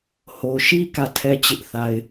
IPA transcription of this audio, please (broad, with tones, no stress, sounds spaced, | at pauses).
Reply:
h o˨ ʃ i˦ k ä˦˨ tʰ ɛ˦ t͡ɕ ɪ˦ ʔ θ a˦ ɪ̯